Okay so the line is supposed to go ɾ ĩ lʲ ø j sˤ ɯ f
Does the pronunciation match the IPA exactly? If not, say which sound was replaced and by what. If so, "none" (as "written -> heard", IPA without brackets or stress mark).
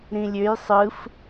none